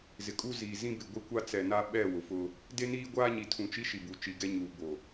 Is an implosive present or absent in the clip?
present